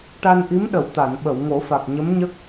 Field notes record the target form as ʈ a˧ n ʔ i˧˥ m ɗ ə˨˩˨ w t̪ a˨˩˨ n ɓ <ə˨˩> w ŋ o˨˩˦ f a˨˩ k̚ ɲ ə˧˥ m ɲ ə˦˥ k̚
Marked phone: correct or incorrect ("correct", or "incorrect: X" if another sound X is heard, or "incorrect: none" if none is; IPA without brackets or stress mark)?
incorrect: ə˨˩˨